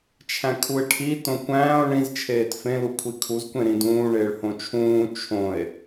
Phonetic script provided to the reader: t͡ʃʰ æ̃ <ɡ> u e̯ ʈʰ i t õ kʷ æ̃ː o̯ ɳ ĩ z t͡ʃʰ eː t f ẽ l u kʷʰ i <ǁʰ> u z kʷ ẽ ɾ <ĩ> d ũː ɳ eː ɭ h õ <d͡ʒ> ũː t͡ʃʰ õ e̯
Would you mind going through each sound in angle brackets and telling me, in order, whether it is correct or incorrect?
incorrect, incorrect, correct, incorrect

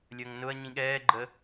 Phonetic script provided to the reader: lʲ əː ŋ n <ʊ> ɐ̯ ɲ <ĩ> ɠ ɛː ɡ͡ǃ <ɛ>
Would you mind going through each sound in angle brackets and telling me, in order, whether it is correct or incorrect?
correct, correct, incorrect

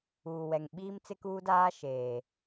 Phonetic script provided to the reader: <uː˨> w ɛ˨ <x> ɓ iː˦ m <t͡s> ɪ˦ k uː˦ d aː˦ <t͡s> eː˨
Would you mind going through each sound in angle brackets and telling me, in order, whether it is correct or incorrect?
correct, incorrect, correct, incorrect

